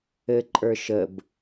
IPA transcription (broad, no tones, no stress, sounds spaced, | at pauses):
ɘ ǃʼ ə˞ ʃ ə b